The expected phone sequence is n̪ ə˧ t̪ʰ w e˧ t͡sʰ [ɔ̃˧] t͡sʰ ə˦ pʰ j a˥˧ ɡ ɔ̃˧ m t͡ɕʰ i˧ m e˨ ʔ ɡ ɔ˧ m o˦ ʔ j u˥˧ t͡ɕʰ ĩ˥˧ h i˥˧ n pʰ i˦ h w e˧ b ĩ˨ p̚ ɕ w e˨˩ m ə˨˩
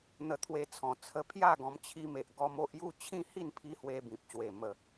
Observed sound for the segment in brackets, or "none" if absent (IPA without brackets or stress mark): ɔ̃˨˩